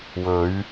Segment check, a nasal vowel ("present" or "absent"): absent